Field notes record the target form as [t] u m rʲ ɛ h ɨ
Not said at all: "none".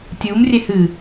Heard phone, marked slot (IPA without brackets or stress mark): tʲ